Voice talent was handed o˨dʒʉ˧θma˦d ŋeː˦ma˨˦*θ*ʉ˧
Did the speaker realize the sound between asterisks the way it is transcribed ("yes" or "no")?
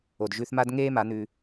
no